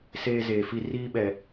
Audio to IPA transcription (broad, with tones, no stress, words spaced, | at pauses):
seː˦zeː˨fi˦ riː˦ɓɛ˨